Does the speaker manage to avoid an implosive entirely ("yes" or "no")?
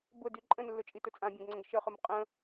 yes